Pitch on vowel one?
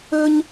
high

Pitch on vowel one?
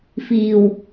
low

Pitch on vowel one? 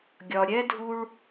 low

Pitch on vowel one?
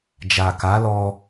low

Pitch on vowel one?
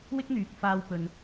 high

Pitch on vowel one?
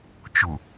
low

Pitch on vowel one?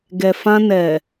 low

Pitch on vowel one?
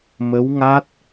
rising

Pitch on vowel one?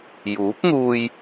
rising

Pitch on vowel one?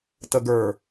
low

